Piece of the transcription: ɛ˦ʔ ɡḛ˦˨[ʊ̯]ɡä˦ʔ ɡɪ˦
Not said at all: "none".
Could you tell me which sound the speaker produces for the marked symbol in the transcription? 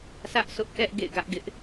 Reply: ɪ̯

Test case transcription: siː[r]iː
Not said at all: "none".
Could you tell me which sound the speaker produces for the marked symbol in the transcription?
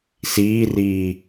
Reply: r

